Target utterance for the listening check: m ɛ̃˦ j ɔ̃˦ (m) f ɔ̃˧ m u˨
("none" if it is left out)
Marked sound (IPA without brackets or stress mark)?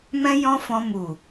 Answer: none